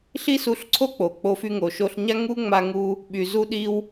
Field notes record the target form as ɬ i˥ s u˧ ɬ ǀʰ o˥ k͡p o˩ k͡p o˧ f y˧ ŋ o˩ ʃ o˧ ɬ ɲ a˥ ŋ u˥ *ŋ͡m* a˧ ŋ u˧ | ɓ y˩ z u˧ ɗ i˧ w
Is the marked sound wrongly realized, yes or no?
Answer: no